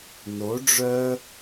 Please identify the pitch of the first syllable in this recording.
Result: rising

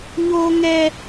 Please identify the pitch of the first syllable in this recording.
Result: high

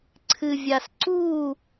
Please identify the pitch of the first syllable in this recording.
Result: low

